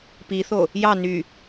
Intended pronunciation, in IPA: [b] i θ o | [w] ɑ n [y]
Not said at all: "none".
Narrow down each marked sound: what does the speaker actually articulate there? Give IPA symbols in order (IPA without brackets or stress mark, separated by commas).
p, j, y